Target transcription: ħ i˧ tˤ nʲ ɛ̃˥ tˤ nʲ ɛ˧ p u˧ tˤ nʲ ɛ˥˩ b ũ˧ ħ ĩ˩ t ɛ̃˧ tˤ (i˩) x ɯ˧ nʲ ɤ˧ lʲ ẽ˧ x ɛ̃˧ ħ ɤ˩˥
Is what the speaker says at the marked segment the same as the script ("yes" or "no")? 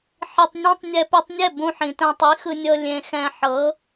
no